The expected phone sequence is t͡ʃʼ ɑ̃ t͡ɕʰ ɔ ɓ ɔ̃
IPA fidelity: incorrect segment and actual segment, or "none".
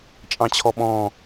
none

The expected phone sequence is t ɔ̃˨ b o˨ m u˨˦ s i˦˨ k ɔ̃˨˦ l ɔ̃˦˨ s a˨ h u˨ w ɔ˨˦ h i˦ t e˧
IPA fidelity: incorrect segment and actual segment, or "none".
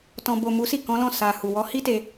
none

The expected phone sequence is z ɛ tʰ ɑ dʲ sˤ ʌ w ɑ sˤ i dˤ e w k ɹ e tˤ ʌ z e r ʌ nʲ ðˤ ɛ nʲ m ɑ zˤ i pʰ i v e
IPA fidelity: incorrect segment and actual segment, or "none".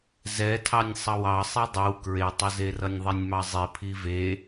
dʲ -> nʲ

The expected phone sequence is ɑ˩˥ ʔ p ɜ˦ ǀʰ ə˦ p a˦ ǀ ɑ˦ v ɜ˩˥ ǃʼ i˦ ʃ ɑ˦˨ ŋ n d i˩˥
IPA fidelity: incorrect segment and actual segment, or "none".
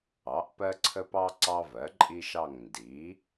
a˦ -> ɑ˦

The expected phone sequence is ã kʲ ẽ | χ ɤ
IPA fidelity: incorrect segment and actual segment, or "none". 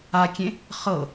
ã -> a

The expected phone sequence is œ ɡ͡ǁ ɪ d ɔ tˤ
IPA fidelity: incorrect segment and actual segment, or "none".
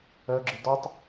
none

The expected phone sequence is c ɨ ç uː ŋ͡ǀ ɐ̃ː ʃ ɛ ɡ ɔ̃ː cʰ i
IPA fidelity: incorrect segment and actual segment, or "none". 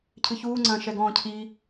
c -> cʰ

